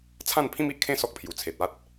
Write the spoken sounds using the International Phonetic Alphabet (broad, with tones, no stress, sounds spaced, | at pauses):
t͡sʰ ã˥˧ n pʰ ĩ˦ m i˨ ʔ kʰ ẽ˥˧ s ɔ˦ k̚ pʰ j u˨˩ t͡sʰ e˨ t̚ a˦ t̚